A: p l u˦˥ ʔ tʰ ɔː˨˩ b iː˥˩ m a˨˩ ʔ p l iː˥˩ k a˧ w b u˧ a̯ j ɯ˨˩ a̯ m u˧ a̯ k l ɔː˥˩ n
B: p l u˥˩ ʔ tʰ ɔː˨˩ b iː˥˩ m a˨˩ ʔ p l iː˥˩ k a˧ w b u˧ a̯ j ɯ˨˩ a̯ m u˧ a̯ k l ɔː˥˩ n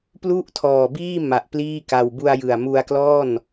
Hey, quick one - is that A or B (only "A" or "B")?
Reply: B